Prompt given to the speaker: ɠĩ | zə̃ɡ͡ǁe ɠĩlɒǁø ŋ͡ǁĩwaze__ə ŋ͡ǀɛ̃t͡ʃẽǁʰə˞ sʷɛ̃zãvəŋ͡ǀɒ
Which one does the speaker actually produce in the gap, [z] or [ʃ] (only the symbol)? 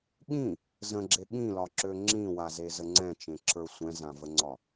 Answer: z